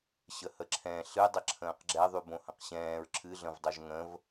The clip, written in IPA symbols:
ɕəhəǁʰɛ̃ ɬɨ dˤəǁʰə̃ːqɡ͡ǁɛ ðˤybõhə̃qɕɛ̃ːɹ ǁʰɨ ɮə̃vdˤoʒŋə̃v

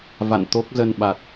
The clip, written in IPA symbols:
va̰˧˨nt̪o˦˥k̚ zə˧nɓa˨˩t̚

